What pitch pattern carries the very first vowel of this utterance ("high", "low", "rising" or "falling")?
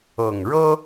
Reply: low